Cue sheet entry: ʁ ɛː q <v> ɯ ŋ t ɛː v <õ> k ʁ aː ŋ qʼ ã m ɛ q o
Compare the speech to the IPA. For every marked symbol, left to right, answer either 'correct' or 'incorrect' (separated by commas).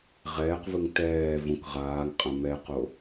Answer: correct, correct